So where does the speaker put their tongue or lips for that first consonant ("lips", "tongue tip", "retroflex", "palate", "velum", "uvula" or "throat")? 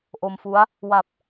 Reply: throat